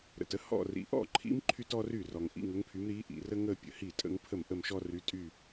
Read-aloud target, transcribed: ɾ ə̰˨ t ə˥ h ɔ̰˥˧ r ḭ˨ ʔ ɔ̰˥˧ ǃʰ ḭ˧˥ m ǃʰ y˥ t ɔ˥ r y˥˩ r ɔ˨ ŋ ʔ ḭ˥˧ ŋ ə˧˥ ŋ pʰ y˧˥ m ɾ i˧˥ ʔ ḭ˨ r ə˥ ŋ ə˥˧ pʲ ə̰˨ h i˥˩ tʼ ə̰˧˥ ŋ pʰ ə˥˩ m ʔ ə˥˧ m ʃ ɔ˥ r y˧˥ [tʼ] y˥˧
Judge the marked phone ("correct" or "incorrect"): correct